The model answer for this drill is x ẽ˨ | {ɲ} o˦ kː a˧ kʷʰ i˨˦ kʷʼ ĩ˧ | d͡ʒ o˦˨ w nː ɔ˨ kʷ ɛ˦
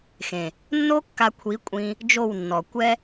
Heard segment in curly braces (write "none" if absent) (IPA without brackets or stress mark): nː